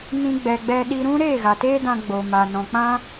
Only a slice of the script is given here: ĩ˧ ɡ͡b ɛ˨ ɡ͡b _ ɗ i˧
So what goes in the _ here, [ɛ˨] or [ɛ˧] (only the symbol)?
ɛ˧